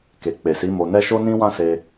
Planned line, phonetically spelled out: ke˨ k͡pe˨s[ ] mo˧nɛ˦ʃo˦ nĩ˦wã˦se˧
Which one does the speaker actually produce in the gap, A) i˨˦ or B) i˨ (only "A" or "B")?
A